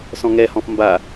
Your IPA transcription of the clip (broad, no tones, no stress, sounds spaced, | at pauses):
s ɔ̃ ŋ ɛ h ɔ̃ f m b a